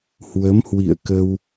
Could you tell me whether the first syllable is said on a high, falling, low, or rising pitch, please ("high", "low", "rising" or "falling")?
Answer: rising